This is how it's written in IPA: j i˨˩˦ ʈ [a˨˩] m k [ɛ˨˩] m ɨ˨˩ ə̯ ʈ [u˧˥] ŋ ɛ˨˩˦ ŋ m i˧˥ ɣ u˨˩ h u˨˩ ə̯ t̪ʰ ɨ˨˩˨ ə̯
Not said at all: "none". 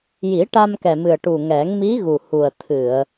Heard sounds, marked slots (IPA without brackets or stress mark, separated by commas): a˧, ɛ˨˩, u˨˩